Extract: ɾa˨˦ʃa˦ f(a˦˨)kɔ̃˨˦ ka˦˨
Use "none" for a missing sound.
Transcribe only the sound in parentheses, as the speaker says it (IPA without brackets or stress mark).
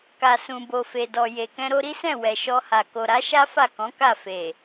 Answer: a˦˨